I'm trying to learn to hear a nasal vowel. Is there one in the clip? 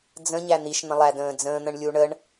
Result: yes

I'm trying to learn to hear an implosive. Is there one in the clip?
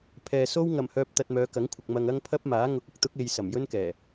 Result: no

